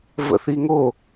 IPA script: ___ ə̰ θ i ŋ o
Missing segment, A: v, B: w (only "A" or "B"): A